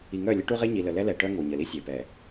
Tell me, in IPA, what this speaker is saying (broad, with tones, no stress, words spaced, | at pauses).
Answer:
i˨ŋœ˦˨ lʲə˦ʈu˦ʁe˦ɲi˨ lə˨lɛ˦lɛ˨ʈœ˦ ŋo˨ɲə˨li˦ sʲe˨pɛ˨